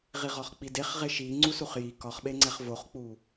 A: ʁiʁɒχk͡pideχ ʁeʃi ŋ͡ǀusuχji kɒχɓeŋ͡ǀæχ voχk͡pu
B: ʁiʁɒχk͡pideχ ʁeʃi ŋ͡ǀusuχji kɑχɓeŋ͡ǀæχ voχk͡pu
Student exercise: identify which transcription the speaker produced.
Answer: A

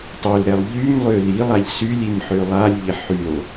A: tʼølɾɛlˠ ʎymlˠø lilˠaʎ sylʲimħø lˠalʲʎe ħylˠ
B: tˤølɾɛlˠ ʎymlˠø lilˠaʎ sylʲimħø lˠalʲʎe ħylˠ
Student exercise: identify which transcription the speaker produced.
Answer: B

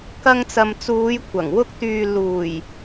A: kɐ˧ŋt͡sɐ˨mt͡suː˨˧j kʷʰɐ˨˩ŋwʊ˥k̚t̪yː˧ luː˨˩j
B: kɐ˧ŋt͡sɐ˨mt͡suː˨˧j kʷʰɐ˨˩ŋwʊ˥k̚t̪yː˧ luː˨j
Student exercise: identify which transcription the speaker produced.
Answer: A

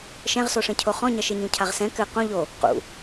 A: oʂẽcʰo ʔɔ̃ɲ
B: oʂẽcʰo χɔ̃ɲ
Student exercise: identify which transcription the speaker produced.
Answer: B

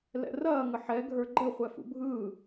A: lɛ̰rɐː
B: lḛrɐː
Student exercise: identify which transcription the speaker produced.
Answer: A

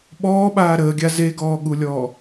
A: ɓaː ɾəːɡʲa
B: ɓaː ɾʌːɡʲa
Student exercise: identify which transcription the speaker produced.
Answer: A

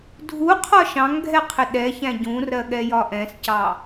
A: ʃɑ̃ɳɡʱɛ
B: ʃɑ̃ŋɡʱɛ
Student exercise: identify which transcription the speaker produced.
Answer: B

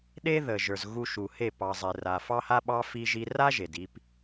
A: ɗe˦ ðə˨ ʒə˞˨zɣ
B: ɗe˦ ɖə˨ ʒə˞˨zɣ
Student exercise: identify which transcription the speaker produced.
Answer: A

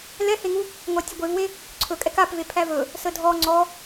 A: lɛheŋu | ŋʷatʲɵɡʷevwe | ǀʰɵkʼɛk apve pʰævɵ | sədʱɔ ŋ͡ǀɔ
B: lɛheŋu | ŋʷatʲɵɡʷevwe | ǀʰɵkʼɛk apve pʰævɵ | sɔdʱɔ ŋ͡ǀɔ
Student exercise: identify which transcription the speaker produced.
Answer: A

